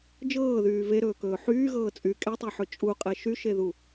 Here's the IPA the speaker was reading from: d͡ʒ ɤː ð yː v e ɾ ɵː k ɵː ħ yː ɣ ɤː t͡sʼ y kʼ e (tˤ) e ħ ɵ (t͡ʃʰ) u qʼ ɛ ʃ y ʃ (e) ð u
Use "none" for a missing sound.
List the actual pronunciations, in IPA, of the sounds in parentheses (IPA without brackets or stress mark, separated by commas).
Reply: tˤ, t͡ʃʼ, e